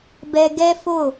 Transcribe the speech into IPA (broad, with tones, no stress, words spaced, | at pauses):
bɛ˧ ɡɛ˦fo˦˨